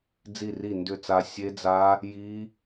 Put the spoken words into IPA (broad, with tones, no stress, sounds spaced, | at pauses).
d͡z i˥˩ r i˥˩ n d ʏ˥˩ t͡s a˦˥ sʲ e˦˥ d͡z a˦˥ | j i˦˥